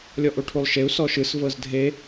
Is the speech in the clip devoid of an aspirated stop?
no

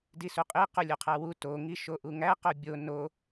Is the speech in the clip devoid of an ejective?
no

